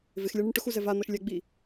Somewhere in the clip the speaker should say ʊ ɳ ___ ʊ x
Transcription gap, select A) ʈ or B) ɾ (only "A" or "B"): A